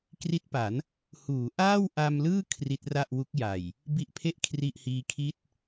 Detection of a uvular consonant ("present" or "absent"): absent